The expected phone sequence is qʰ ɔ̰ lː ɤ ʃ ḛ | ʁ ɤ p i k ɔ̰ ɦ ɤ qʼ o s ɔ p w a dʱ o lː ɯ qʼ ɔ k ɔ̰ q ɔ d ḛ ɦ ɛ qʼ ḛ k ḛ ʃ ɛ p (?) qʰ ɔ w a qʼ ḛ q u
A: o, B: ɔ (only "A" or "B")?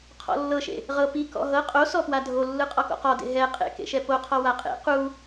A